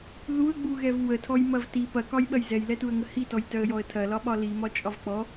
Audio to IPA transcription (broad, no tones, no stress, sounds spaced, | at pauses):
ð u ə̯ ɡ͡b u ɣ ɛ v w ə tʰ ɔ j m ɐ v t i p ɐ k ɒ j ɓ ɐ j z ɛ j l ɛ t u ə̯ ŋ ə h i t ɔ j t œ ə̯ j ɔ ə̯ tʰ ɐ l ɒ ɓ ɒ l i m ɒ t͡ʃʼ ɒ v k͡p ɔ